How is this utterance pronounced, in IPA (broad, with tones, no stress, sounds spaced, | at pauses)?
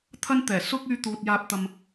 t̪ʰ ɐ˥ n t̪ ɛː˨˩ s ʊ˥ k̚ yː˥ t̪ uː˧ t̚ j aː˧ p̚ t̪ ɐ˧ m